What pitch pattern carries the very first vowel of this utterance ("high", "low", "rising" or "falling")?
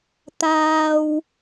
high